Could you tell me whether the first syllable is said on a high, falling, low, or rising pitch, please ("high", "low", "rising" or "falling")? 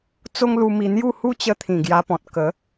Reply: high